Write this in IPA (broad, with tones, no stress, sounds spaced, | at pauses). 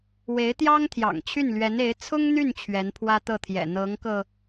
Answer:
w e˧˥ ɪ̯ t̪ j ɑ˥ ŋ t̪ʰ j ɑ̰˨˩ ŋ t͡ɕʰ y˥˩ n l ɥ ɛ˧˥ n e˧˥ ɪ̯ t͡sʰ ʊ˥ ŋ n̪ y˥˩ n t͡ɕʰ ɥ ɛ˧˥ n pʰ w ä˥ t̪ ɤ˥˩ t̪ʰ j ɛ̰˨˩ n̪ ɤ˧˥ ŋ k ɤ˧